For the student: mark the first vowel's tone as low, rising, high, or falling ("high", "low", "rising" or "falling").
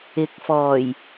rising